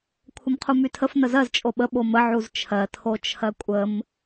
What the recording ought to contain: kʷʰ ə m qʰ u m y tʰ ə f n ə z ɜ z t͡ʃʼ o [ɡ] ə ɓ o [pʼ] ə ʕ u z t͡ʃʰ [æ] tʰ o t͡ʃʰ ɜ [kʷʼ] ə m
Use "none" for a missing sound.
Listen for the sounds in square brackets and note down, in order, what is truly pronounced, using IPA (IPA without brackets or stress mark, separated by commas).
ɓ, m, ɜ, kʷʼ